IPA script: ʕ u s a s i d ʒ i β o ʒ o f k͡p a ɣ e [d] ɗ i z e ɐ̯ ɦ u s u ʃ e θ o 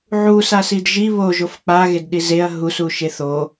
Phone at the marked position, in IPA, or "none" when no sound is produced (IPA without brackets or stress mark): d